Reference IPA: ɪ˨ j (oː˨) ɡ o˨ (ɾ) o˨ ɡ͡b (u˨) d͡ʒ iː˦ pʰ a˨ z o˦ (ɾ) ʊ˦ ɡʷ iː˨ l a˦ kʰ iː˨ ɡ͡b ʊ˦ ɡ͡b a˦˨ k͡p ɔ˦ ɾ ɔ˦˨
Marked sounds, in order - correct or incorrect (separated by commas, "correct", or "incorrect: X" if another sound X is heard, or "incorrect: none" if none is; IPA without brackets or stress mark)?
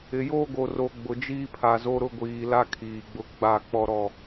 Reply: incorrect: oː˦, incorrect: r, incorrect: ʊ˨, correct